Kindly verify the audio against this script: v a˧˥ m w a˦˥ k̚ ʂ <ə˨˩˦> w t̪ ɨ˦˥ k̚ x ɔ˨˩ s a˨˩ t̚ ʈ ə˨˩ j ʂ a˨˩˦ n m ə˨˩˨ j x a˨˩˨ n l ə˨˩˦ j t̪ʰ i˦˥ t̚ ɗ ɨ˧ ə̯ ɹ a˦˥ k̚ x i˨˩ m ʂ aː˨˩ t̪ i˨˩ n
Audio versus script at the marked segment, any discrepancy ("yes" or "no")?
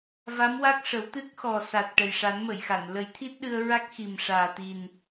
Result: no